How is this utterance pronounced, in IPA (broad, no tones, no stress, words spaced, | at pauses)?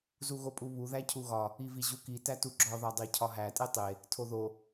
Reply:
zuɣopʼuβu ðæcʰuɣɒ | iviʑuki tætuɡ͡ǁɒ ðɒdˤecʰɒɦæ tʼetˤe | tʰoðo